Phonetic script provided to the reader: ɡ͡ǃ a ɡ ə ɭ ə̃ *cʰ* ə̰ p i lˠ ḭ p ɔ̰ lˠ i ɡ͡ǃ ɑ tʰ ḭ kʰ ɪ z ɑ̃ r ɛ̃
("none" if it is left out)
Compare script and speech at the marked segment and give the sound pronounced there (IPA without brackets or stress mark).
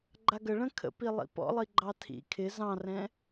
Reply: kʰ